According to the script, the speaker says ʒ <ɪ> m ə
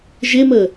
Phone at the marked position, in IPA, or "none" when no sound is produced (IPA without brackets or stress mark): ɪ